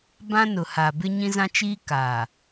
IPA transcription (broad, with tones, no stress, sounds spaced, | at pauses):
b ã˦ n ʊ˨ h a˨ b ɪ˦ ɲ ĩ˦ z ã˦ t͡ʃ iː˦ k aː˨